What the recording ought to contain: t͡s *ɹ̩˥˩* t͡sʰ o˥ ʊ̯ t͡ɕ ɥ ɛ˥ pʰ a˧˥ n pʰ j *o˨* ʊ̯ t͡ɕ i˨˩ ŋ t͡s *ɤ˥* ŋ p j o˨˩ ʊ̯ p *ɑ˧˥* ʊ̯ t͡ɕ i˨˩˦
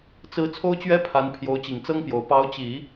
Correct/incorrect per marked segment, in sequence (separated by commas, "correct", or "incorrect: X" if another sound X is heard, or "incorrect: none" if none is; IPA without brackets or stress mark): incorrect: ɹ̩˧˥, incorrect: o˧˥, correct, correct